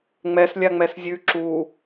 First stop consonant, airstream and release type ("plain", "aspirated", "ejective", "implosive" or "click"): click